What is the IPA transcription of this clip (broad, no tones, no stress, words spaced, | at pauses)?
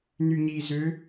nyɲizø